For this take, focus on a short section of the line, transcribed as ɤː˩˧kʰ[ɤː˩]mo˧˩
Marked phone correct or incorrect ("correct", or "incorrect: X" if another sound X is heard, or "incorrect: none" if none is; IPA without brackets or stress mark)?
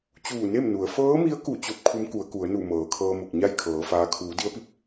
incorrect: ɤː˧